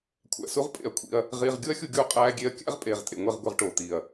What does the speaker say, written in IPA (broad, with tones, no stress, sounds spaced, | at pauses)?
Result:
kʷʰ æ̰˨ s u˧ ʁ pʼ ḛ˨ ɐ̯ kʷʰ ḭ˧ ɐ̯ | ʁ iː˧ ʁ ɡʲ u˦ ɐ̯ xʲ u˧ ɡʲ uː˧ qʼ æː˧ ɡʲ e˧ ɐ̯ kʲ æ̰˦ ʁ pʼ eː˨ ʁ tʼ ḛ˨ ŋʷ e˦˨ ʁ ɡʷ e˧ ʁ ʈ oː˨ t̪ iː˨ ɐ̯